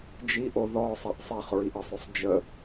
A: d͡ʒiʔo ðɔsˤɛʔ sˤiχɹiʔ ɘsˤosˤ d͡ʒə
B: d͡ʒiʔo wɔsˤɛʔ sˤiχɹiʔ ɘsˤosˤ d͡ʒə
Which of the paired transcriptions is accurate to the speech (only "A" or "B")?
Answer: A